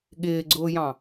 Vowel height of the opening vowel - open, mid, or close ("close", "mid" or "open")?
close